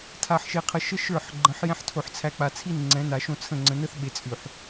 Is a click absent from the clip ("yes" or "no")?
no